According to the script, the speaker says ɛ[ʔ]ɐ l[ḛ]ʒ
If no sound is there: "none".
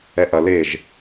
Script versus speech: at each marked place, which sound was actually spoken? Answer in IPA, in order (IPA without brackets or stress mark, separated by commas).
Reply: ʔ, e